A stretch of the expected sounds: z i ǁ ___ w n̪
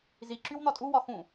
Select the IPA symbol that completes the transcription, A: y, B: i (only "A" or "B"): A